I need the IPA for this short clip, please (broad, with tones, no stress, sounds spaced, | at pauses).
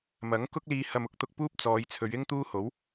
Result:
m ɐ˨˥ ŋ k ʊ˥ k̚ l iː˧ h ɐ˧ m ʊ˥ k̚ t̪ ʊ˧ k̚ p uː˥ p̚ t͡s ɔː˨˧ j t͡sʰ ɵ˨˧ ɥ ɪ˥ ŋ t̪ uː˥ h o˨˥ w